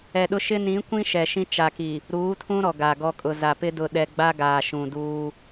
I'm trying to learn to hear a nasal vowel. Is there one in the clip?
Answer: yes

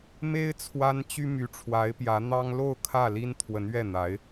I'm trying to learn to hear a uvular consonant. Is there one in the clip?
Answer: no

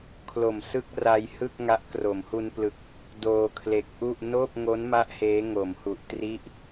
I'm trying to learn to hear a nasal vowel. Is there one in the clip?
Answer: no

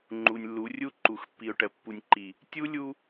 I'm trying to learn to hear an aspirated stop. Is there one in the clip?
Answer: no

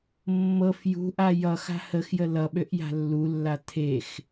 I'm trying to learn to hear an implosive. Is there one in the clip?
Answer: yes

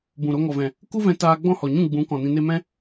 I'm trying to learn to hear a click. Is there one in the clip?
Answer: no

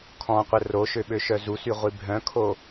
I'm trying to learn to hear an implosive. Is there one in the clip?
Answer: yes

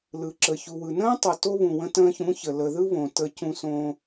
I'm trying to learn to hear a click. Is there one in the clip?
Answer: yes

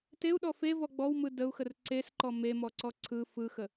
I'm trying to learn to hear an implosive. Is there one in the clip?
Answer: yes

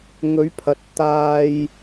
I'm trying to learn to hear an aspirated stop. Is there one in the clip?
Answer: yes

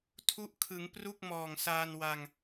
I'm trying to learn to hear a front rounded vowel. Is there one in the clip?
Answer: no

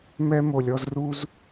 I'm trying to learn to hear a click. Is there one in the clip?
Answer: no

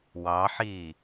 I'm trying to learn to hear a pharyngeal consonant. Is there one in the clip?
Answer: yes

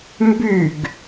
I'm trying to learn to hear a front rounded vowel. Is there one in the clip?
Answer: yes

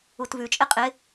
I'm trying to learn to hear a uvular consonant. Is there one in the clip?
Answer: yes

